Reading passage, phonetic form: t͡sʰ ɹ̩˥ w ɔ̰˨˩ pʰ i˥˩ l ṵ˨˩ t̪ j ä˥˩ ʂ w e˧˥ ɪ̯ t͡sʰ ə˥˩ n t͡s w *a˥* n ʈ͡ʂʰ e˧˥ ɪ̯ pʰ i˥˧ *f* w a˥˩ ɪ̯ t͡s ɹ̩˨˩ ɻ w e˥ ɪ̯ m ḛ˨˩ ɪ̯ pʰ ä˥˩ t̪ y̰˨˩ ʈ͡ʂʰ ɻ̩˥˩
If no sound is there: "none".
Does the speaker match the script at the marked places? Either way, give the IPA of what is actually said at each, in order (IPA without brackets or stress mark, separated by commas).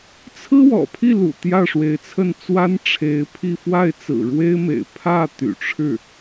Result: a˥, f